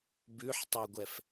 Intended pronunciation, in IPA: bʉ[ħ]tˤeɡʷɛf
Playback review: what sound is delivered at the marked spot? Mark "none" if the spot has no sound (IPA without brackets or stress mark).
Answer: ħ